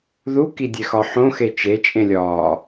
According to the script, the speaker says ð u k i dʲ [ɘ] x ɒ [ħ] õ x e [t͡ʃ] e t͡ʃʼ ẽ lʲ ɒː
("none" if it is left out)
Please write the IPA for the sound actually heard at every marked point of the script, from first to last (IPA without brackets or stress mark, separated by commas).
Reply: e, ħ, t͡ʃ